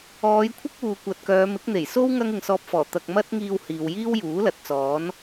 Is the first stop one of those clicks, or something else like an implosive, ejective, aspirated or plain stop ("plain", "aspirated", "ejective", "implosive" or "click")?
aspirated